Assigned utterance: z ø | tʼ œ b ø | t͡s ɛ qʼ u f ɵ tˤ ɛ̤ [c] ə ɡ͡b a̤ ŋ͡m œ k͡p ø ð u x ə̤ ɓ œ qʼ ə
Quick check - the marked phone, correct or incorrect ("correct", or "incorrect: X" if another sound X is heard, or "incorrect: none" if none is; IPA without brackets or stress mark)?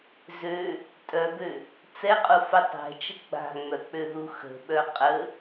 incorrect: t͡ʃ